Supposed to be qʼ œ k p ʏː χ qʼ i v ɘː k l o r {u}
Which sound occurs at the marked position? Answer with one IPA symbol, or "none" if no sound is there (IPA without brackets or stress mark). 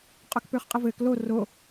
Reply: o